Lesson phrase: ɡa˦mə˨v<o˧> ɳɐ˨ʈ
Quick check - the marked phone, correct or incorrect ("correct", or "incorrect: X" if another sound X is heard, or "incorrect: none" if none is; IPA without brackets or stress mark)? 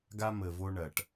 correct